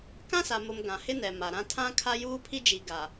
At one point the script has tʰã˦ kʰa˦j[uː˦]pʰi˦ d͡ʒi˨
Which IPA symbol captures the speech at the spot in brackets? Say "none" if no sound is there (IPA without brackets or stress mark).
uː˦